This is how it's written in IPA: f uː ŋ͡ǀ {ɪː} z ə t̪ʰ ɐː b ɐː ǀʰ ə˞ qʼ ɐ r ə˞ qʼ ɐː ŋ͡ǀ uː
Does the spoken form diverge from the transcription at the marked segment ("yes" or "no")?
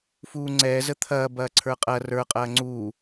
yes